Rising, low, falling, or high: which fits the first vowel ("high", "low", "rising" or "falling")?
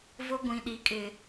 high